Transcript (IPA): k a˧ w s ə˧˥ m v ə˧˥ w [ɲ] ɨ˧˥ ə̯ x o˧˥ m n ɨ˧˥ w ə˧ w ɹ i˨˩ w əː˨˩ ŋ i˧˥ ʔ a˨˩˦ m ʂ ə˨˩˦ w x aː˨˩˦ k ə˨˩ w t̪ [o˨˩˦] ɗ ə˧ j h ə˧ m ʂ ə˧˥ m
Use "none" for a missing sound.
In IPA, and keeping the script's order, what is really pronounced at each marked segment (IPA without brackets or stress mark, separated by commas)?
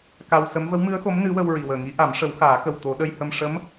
m, o˨˩˦